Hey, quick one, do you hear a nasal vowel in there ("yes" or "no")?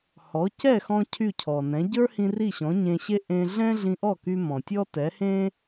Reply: yes